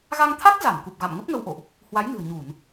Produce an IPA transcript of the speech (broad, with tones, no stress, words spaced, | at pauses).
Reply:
ɣa˧ŋt̪ʰa˦˥k̚ za˧˩nku˨˩p̚ ɣa̰˧˨m ŋə˦˥p̚ŋə˧wʔo̰˧˨ʔ | hwa˨˦jnɨ̤˨˩ə̯ɲu˧˩˨n